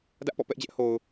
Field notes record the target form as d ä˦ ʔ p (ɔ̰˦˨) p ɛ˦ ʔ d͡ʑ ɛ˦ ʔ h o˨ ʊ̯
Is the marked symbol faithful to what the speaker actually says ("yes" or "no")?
yes